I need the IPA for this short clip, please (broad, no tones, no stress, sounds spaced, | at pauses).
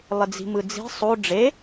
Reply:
lˠ ɪ d͡z i̤ m ɯ d͡z i̤ sˤ o ɖ͡ʐ e